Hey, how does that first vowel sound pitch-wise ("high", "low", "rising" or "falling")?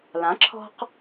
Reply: rising